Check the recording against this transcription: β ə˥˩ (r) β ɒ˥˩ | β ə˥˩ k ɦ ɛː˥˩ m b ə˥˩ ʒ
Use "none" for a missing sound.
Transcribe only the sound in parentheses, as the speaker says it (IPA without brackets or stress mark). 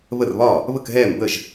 r